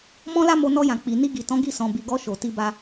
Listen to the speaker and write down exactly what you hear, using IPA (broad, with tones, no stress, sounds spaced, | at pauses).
m ɔ̃˦ l a˦ m o˧ n ɔ˧ j ã˨ k͡p i˨ n i˧ ɡ i˨ t ɔ̃˨˦ ɡ i˦˨ s ɔ̃˨ b i˨ ɡ ɔ˧ ʃ o˨ t i˧ b a˧